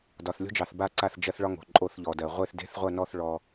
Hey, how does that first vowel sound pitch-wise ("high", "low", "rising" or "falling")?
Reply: low